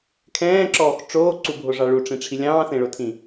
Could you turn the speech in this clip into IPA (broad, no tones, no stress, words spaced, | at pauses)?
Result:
kʰɛ̃ːǁɔːx ʈ͡ʂoːǀubʱoʐɑ ɭuʈ͡ʂĩʈ͡ʂʰi lʲɑ̃ːsẽɭotʰĩ